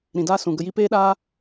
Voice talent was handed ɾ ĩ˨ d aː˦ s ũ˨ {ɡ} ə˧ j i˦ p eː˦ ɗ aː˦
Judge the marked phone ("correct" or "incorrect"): correct